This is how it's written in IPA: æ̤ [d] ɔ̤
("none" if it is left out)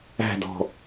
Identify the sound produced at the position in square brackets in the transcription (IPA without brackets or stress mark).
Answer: d